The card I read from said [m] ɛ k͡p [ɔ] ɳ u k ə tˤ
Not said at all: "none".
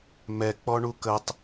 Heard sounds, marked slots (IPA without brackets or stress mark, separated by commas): m, ɔ